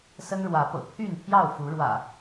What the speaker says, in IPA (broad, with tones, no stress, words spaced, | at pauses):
sə˦nɻwä˨˦pɤ̰˨˩ pʰy˥˨npʰjɑ˥˨ʊ̯ fu˨˦ɻwä̰˨˩